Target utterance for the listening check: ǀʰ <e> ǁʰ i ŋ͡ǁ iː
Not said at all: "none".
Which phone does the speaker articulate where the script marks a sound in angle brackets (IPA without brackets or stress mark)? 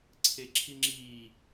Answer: e